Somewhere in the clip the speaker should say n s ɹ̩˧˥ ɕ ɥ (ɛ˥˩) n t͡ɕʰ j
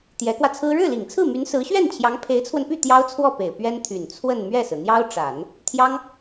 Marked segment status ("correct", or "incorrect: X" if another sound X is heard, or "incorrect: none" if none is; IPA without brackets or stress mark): correct